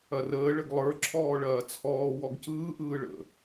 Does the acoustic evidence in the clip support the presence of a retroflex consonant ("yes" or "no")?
yes